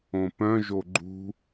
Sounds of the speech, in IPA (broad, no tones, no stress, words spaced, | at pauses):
õpœ̃ ʒoɡ͡ǃṳ